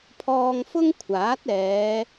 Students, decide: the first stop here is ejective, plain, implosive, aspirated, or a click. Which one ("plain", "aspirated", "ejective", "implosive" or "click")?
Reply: aspirated